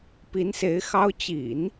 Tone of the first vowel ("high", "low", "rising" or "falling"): rising